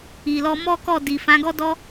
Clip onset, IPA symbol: i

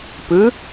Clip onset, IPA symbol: p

